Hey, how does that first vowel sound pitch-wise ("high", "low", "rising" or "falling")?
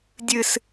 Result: low